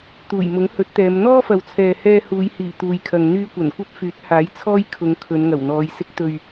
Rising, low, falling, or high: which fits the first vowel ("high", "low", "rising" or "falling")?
low